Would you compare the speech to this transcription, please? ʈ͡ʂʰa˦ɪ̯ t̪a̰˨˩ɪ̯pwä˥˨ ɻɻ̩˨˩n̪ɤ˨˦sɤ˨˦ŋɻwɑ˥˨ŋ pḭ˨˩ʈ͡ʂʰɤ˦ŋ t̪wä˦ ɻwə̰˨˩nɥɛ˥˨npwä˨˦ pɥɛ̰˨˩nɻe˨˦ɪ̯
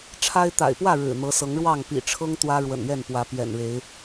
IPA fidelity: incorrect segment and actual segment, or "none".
none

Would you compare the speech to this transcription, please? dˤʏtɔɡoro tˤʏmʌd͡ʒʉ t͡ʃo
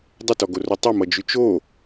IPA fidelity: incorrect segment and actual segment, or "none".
none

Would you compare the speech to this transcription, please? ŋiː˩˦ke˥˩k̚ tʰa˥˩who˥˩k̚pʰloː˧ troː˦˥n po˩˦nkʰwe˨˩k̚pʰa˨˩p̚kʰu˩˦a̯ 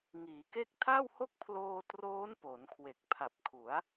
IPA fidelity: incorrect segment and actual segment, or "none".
none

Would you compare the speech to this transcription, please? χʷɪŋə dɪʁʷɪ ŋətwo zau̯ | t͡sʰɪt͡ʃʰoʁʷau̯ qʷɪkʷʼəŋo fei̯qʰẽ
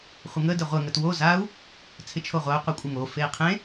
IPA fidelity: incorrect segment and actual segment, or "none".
none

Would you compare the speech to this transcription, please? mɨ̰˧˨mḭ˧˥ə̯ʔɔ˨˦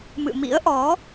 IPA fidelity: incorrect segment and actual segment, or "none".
none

